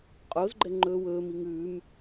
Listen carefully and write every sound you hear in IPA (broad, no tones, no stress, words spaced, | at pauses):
qʼozɡ͡ǃɛ ŋ͡ǃɵːwɵːmi ŋʉːm